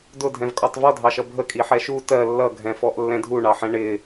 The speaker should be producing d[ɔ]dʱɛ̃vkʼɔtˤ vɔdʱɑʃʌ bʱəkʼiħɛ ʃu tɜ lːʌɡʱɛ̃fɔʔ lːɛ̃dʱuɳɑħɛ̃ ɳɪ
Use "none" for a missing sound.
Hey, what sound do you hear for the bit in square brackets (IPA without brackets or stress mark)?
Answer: ʊ